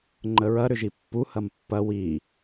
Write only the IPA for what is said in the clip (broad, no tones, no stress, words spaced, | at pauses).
ŋ͡ǃəɹɐ ɾʏʒipːu hɐmpːɐ wi